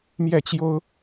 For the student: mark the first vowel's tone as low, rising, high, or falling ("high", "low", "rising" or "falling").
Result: falling